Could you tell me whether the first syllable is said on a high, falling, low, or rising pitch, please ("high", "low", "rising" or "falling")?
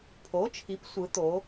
rising